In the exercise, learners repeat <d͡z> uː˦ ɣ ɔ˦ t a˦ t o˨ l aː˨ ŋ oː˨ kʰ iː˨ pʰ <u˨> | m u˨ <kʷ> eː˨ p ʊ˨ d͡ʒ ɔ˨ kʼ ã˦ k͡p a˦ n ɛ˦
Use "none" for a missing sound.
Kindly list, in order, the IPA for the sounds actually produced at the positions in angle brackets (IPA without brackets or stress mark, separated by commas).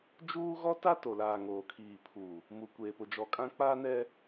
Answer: d͡ʒ, u˨, kʷ